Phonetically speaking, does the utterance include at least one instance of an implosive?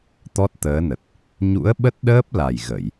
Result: yes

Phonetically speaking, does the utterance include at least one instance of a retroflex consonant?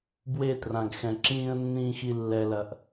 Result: no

